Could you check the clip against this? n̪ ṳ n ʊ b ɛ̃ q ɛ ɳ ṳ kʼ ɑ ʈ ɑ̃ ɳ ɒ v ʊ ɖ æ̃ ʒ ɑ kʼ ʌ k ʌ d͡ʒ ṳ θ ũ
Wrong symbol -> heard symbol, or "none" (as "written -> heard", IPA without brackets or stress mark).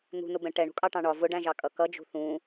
q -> ʈ